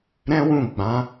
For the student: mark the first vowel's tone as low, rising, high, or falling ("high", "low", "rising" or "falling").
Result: high